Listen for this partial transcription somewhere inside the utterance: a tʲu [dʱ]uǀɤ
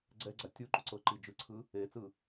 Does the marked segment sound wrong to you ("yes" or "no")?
yes